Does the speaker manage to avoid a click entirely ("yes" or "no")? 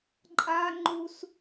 no